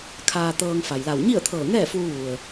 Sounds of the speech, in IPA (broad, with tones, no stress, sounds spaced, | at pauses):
kʰ aː˧ t̪ ɤː˧ ŋ f a˩ j l a˧˩ w ɲ i˥˨ ə̯ t̪ʰ ɤː˧˩ ŋ ɛː˥˨ f uː˧ ʋ u˩ ə̯